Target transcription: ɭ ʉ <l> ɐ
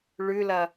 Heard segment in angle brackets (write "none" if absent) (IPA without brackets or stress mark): l